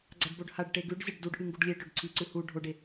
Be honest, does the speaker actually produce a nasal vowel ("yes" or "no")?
no